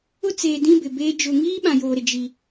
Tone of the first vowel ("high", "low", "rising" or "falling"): high